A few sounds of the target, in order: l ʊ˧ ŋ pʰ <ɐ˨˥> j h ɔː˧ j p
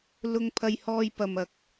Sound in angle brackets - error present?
yes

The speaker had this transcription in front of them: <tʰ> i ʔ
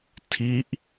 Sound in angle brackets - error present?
no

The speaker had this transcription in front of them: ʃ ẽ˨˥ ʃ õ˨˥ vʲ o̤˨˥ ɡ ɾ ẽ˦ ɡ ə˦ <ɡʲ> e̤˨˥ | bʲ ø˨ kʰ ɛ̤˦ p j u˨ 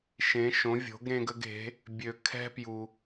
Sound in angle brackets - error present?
yes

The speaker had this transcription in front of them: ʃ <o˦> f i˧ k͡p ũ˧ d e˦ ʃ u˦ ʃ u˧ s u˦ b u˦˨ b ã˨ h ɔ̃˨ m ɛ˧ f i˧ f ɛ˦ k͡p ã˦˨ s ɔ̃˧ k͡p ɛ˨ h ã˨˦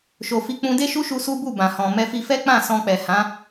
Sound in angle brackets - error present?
yes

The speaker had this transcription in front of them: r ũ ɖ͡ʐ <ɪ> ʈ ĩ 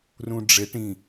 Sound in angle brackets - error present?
no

